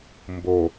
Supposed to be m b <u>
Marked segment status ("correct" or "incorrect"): incorrect